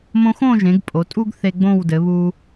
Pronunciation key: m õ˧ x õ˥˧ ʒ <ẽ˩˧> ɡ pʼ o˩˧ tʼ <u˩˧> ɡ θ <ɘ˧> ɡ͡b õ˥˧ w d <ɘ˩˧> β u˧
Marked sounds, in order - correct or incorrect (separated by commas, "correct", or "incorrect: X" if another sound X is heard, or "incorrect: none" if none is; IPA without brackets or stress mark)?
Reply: correct, incorrect: u˥, incorrect: e˧, correct